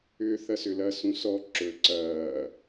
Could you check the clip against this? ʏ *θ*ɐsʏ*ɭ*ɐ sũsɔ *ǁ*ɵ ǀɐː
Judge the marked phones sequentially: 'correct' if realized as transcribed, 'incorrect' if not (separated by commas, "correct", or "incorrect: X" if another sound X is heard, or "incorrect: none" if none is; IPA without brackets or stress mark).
correct, incorrect: l, correct